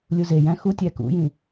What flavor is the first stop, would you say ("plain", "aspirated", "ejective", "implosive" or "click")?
plain